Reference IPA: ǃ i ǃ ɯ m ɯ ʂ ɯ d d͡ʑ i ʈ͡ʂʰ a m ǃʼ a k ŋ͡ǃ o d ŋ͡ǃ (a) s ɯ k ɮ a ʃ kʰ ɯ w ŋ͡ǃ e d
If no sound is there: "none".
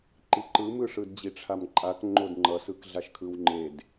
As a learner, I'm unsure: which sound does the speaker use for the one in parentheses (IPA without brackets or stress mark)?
ʌ